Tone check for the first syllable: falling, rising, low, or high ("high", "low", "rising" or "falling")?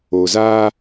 low